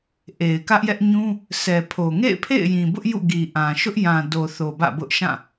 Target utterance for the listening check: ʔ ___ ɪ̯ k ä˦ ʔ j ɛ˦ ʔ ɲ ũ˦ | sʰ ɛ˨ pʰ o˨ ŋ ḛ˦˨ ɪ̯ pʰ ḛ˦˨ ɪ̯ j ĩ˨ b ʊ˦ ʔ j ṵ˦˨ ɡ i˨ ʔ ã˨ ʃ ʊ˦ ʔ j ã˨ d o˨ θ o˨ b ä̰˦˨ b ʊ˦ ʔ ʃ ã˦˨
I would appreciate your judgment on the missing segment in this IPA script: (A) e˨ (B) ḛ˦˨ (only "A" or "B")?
A